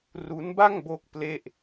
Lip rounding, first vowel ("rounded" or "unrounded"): rounded